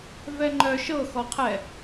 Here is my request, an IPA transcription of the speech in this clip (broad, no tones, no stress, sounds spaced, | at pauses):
v ɛ ŋ͡ǃ œ ʃ ɤ x ɔ qʰ ɛ